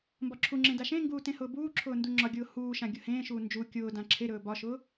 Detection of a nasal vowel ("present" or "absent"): present